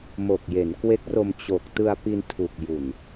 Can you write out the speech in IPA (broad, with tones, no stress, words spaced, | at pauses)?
mo˨˩k̚je˩˦nkwe˦˥k̚ro˧m t͡ɕo˨˩k̚ tɯ˧a̯pi˧ntʰu˨˩k̚ ju˨˩n